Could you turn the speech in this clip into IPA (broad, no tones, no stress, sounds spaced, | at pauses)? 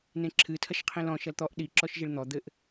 n ẽ ǁʰ ɨ tʰ ɐ ʃ qʰ ĩ l ɔ̃ ʃ ɐ l t̪ ɔ ʔ ɗ i ǁ ɔ ʃ ʒ i ɭ n̪ ɔ d̪ ɘ ʔ